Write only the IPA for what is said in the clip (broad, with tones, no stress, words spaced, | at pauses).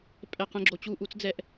pʼɛ˦˨qɛ̃˦ɡ͡ǁo˧ t͡ɕu˦˨ʔu˦t͡sd͡zɛ˦ʔ